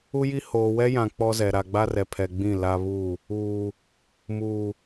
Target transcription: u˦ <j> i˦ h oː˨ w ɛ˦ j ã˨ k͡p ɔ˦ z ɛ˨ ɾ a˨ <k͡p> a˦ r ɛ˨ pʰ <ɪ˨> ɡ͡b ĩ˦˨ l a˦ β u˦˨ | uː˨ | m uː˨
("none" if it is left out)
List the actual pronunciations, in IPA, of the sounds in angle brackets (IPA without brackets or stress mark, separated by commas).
j, ɡ͡b, ɛ˨